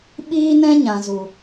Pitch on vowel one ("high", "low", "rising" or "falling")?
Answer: high